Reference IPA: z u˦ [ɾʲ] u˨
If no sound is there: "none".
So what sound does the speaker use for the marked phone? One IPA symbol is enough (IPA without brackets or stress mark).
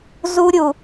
ɾʲ